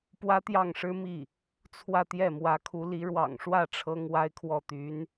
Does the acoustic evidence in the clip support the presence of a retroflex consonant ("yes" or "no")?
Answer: yes